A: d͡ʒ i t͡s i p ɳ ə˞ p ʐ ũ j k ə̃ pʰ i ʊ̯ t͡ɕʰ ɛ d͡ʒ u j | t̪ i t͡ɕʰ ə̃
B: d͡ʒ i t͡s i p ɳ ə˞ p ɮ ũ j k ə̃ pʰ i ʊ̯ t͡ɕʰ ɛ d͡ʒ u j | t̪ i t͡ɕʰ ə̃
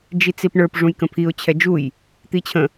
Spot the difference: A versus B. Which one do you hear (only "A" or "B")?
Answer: A